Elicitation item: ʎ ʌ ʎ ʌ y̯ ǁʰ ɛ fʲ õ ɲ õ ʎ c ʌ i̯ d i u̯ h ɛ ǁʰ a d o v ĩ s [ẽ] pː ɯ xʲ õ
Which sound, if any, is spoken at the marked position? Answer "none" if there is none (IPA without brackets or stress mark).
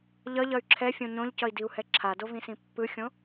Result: ĩ